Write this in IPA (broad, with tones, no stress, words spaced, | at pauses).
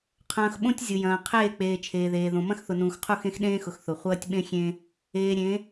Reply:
qʰɐ̃ː˦x ɓõ˦tʲ zʲʊ˨jɐ̃ː˨ qʰeː˦˨k͡peː˨ t͡ʃʰeː˨ðeː˨ðõ˨ mɐ̃˦xθʊ˨nũː˨xqʰu˦˨x ẽ˦xɗẽː˦xʊ˨x θʊ˨ χʷɐː˦tʲɓẽ˦xʲẽ˦ | eː˨ ɾʲẽ˨˦